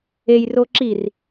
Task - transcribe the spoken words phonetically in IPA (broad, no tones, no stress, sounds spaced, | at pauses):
e j r oː ǁ i r